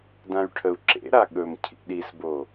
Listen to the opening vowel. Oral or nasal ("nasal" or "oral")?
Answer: nasal